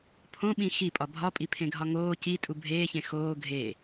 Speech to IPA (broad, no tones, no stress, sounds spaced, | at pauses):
pʰ õ ɓ ĩ x i pʼ ɒ bʱ ɒ pʼ i pʰ ẽ ɡʱ ɒ ŋ oː c i tʼ u bʱ eː ç ẽ x oː ɡʱ e